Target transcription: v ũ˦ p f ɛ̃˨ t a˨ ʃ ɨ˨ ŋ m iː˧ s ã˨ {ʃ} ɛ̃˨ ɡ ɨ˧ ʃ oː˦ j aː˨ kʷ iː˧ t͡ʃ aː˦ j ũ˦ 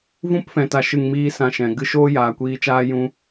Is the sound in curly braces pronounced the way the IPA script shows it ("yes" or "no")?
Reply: yes